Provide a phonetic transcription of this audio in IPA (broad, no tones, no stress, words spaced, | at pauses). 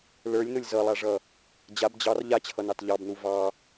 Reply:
lə˞lʲnʊlʲ zʌlˠaʐʌ | d͡ʑab d͡ʑɑr ʎat͡ɕʰʌnɑt ʎɑbnu vɑ